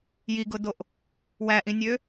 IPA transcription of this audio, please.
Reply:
j i ɡ ʊ d o ʔ | w æ ʔ ĩ nʲ ø

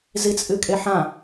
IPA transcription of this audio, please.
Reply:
z i t͡sʼ ɨ kʼ e ħ ã

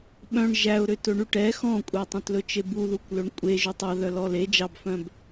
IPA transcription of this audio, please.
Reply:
ɓ œ̃ ɳ ʒ æ ʊ̯ ɾ ø t ɵ ɳ y ʈ ɛ x ɔ̃ kʷʼ ɛ tˤ œ̃ t l ɵ t͡ʃ e b u ð u kʷ l ɵ ɳ kʷʼ e ʒ ʉ tˤ ɑ ð œ l ɔ l e d͡ʒ ɑ b f œ̃ b

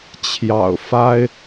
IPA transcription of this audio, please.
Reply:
t͡ɕʰ j ɑ̰˨˩ ʊ̯ f a˥ ɪ̯

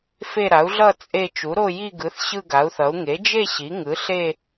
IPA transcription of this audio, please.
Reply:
f e˥˧ ɾ a˩˥ u̯ ɮ ʌ˥˧ t͡sʼ e˥˧ t͡ʃ u˩˥ ɾ o˥˧ j i˥˧ ɡ ɯ˩˥ θ ɕ ɯ˥˧ ɡ a˩˥ u̯ θ ʌ˩˥ u̯ ŋ e˩˥ d͡ʒ e˥˧ ɕ i˩˥ ŋ ɯ˩˥ ɬ e˥˧

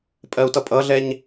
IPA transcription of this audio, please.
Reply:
pʼ ɜ u̯ t ʌ pʼ ʌ ɮ ɛ ɲ

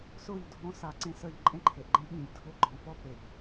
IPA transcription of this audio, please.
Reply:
s ʊː˦˨ ʎ dʱ ɔ̃˦ s a˦ ǀ ẽ˦ s əː˦ ʎ ǃʼ ẽ˦ ǃʰ e˨ ʔ ɡ͡ǃ ẽ˦ ɓ ĩ˨ ʎ dʱ ʊː˦ ɡ͡ǃ ɔ̃ː˨ f ɔ˦ p e˨ ʎ

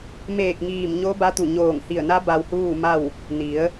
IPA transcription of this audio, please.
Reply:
m eː˧˩ k̚ ŋ iː˧˩ m ɲ o˧˥ b a˧˥ t̪ u˧˩ ɲ oː˧˩ ŋ h i˧˩ ə̯ n a˧˥ b a˧ w h uː˥˨ m a˥˨ w | n i˩˧ ə̯

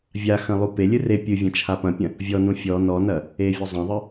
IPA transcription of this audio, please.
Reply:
vʲ a x ɐ̃ lˠ u p e lʲ ɨ r e pʲ ɨ vʲ ɐ̃ t͡ʃʰ a p ɐ̃ pʲ ɐ̃ | vʲ ɔ n ũ fʲ ɔ n ɔ n ɐ | e vʲ ɔ zˤ ɐ̃ ðˤ ɨ

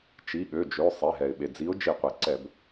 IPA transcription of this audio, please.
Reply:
t͡ʃ i˩˧˩ ɠ ø˩˧˩ d͡ʒ ø˩˧˩ sˤ e˩˧˩ ɦ ɛ˩ ɪ̯ ɓ e˩ d͡z i˨˥ ʊ̯ d͡ʒ i˧˩˧ qʷ e˩ ǀ ɛ˧˩˧ b

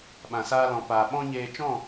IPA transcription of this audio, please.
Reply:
ɓ ã˨ s aː˧ l ɔ̃˨ p aː˨ ɓ ɔ̃˦ ɲ eː˧ t͡ʃ ɔ̃˦˨

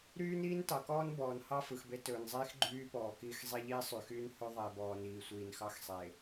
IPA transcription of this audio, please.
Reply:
ɾ yː˦ n iː˦ n t ɑ˨ k ɔː˦ n b ɔː˨ n h ɑ˦ f ɯ˨ x b e˦ t ɵː˨ n zˤ iː˦ x ɡ͡ǃ yː˦ p ɔː˨ k iː˦ x zˤ i˦ ʎ iː˦ sˤ y˨ x yː˦ n h ɵ˦ ðˤ e˨ b ɔː˨ n iː˨ sʷ iː˨ n x ɑ˦ x sˤ e˨

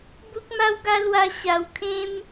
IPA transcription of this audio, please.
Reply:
b u˦ k̚ m a˦ w ɡ a˦ l w a˦ ɕ a˧ w kʰ ẽ˦ m

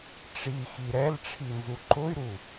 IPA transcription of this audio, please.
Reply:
ʈ͡ʂ i x i ɾ ɛ l ʈ͡ʂʰ i n z u ǃ ʊ y̯ ɾ u

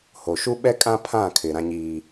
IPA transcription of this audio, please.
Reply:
h o˨ ʃ u˦ ɓ ɛ˦ kʼ ã˦ pʰ ã˦˨ kʰ ɪ˨ ɾ ã˦ ɲ iː˦

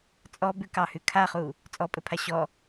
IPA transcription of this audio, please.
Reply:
t͡sʼ ɔ b ʉ k ɑ h ʉ kʰ a χ u | t͡sʼ ɔ pʼ ɘ pʰ a ɕ ɔ

